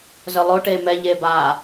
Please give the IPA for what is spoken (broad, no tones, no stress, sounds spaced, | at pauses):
z œ lˠ o ʈ eː m ɛ ʎ eː b aː